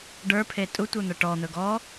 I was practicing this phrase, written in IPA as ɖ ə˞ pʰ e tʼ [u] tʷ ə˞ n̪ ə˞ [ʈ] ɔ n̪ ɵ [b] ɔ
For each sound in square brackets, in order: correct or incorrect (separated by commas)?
correct, correct, incorrect